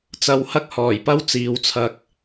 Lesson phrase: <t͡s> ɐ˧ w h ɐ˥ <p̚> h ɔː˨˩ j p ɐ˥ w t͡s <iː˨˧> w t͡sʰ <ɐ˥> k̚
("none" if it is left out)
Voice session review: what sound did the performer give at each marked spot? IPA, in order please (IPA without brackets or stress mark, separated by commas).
t͡s, k̚, iː˨˧, ɐ˧